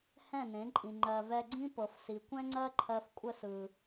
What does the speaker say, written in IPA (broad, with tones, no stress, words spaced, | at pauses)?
hɛ̃˦˨nẽ˨˦ǃʼĩ˨ ŋ͡ǃɜ˨vɛ˧ɡ͡ǀĩ˦pɤ˨f si˨ kʷɛ̃˦ŋ͡ǀɜ˦ ǃʰɜ˧f kʷʼə˦sɯ˨